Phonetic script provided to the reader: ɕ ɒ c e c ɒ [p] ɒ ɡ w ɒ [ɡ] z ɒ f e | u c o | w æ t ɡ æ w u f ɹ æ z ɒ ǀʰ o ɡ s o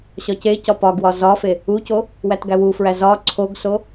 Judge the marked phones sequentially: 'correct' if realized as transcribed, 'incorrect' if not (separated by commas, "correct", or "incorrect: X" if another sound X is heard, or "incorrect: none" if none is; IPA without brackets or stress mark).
correct, incorrect: none